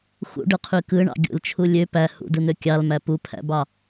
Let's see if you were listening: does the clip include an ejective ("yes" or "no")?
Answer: no